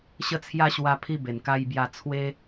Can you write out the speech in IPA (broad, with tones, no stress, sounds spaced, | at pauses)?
ɕ ə˦ t͡sʰ j a˦ ɕ w a˧ pʰ i˧ b e˨˩ n k a˧ j b j a˧ t͡sʰ w e˦